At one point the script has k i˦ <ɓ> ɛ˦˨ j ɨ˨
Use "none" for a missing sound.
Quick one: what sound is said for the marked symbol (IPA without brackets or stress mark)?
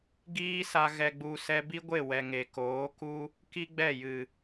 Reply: ɡ͡b